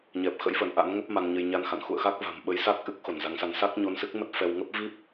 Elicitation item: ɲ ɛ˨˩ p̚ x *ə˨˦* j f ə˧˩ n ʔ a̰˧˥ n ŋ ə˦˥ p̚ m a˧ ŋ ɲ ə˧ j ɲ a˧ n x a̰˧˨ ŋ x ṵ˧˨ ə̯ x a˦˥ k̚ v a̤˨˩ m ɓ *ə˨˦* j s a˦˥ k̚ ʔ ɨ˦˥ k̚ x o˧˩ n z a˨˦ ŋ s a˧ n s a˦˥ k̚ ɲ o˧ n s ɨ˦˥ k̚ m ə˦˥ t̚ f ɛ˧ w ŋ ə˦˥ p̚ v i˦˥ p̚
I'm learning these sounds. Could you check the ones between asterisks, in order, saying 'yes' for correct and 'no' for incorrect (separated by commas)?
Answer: no, yes